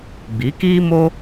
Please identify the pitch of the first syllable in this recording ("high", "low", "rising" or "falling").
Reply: rising